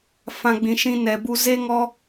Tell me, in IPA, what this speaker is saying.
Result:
f ã˨ ɡ͡b ĩ˨ ʃ ĩ˧ n ɛ˨ b u˧ z e˦ ŋ ɔ˦

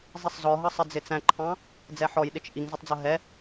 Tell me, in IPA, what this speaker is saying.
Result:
zˤ i sˤ z ɔ ɦ ʌ sˤ ɪ d͡z ɪ t͡s æ̃ ǃʰ ɑ̃ | d͡z ɛ ħ ɔ j ɗ ɪ t͡ʃ ʔ i ŋ z ɪ tˤ d͡z ʌ ɦ ɛ

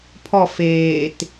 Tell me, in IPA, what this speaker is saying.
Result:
pʰ ɔ f eː t

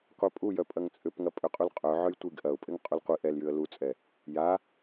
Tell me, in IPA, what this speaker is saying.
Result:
qʷ œ pʼ u j œ pʼ ɐ ŋ t͡sʼ ʏ p ŋ ɐ pʼ ʏ qʼ u l qʼ œ ʕ œ j tʷ i ɡ ʔ ɐ ʊ̯ pʼ ɪ ŋ qʼ u l qʷ i ʔ ɛ l j y ə̯ l u t͡sʼ ɛ | j a

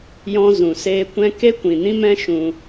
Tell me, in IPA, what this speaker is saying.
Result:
j ɔ̃˧ z ũ˨ s eː˧ kʷ ɛ̃˦ k e˦ kʷ ĩ˨ n ĩ˦ m ɛ̃˦ ʃ ũ˧

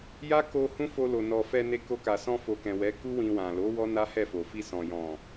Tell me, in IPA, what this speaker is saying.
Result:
j a˦ k o˧ h ũ˦ f o˧ l o˨ n ɔ˨ f ɛ˧ n e˧ k o˧ k a˨ s ɔ̃˧ f o˨ k ɛ̃˨ w ɛ˨˦ k u˦ w ĩ˧ w ã˨ l o˨˦ w ɔ˦ n a˦ h ɛ˦˨ f o˨ f i˧ s ɔ̃˨ j ɔ̃˨

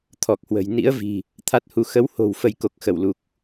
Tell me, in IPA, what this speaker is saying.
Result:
t̪ʰ ɔ˨˩ k̚ h w ə̤˨˩ j n ḭ˧˥ ə̯ v i̤˨˩ | t̪ʰ a˦˥ t̚ h u˧ x ə˨˦ w h o̤˨˩ w f ə˧ j k o˨˩ k̚ x ə˧˩ w l u˨˩ k̚

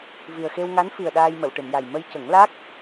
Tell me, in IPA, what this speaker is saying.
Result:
v i˨˩ ə̯ x e˧ w ŋ a˧˥ n f i˨˩ ə̯ ɗ aː˧ j m ə˨˩˨ w ʈ ɨ˨˩˨ m j a˨˩ j m ə˧ j c ə˨˩˦ ŋ l a˦˥ k̚

